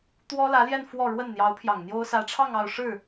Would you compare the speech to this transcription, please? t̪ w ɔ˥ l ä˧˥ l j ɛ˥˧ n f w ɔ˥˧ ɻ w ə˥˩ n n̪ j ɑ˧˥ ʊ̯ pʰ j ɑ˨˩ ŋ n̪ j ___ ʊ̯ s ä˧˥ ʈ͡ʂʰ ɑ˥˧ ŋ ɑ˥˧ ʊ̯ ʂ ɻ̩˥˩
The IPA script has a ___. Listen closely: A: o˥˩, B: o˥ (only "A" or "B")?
B